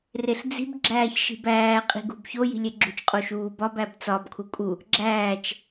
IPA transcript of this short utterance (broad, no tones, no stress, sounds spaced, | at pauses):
r e ɬ d͡z i̤ b ɡ͡ǁ æː ç ʃ i̤ b æː qʼ i̤ ɡ ṳ b ç o j i̤ lʲ e ɡ͡ǁ ṳ t͡ʃ qʼ o ʃ uː b ɒ b æ b t͡s ɒ b kʰ u kʼ u | ɡ͡ǁ æː t͡ʃ